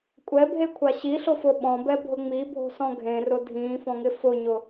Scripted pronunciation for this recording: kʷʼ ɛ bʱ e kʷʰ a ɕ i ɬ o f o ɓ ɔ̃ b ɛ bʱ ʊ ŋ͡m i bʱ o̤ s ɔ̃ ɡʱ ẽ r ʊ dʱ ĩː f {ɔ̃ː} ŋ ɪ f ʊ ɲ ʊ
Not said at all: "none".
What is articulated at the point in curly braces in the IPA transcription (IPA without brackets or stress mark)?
ɔ̃